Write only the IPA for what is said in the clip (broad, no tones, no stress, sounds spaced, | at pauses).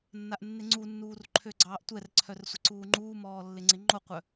nː a ʔ nː ɪ ŋ͡ǀ u nː uː r ǃʰ ø ɡ͡ǀ ɑː ʔ tʷ ɛ r ǀʰ œ r sʷ ɪ ǀ uː ŋ͡ǃ uː m ɔː lː ɪ ŋ͡ǀ ɪ ŋ͡ǃ o qʷ œ